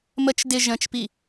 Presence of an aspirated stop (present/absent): absent